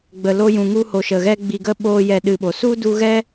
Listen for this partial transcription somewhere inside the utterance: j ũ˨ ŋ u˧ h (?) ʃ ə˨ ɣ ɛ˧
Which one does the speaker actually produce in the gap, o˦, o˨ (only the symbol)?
o˨